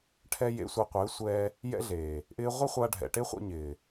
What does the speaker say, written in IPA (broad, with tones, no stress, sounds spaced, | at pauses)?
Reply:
ʈʰ ɛ˧ j ḛ˧ sʷ a˧ qʷ ɪː˨˦ sʷ ɛː˧ | j ɛ̰˦ ɮ eː˨ | ʔ ɪː˧ ʁʷ ɪ˦ χʷ a˧ ɖʱ ɛ̰˨ ʈ e˦ χʷ ɛ̰˧ ɲ ɪː˨